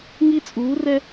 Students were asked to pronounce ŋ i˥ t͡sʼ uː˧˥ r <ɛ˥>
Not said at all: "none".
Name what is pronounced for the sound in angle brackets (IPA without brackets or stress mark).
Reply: ɛ˥